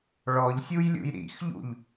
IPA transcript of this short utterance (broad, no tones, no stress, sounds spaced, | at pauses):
ɭ ɔ ʎ sʲ u j lʲ ṵ j ɾ ḭ x ʎ ṵ ʎ